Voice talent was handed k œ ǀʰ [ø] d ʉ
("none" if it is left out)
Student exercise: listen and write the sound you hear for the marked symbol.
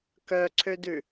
ø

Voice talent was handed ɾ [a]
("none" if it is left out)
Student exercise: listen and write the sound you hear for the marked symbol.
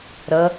ʌ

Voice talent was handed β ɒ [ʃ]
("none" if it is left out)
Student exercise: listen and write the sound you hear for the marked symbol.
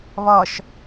ʃ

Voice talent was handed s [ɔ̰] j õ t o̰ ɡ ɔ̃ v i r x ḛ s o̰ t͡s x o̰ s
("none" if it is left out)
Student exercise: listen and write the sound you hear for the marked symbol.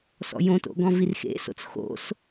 ɔ̰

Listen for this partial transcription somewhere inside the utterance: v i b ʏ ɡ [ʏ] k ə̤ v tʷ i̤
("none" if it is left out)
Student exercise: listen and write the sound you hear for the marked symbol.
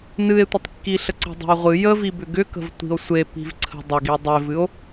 ʏ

